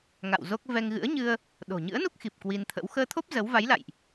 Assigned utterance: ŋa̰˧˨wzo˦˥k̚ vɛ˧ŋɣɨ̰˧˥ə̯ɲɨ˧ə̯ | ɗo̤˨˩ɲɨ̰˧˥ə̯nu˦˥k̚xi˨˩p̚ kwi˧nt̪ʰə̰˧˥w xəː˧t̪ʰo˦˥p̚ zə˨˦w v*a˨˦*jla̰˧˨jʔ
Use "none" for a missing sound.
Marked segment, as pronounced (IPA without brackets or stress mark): a˨˦